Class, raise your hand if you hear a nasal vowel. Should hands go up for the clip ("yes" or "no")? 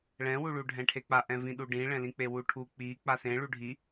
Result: yes